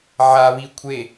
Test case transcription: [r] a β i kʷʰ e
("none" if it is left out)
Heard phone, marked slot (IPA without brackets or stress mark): ʕ